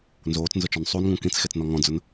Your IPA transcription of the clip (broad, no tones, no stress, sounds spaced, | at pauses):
n z oː t͡s n z ʊ t͡ʃ ɔ n sˤ u n ŋ ũ k ĩ t͡s x e t͡s n ɔ ŋ ɔ̃ d͡z ʊ n